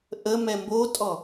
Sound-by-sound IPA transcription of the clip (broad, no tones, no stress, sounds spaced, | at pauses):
ʔ ə m ɛ m b o tʼ ɔ